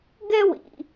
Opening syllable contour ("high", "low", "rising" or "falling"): high